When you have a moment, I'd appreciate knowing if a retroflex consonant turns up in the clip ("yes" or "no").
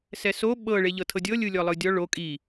yes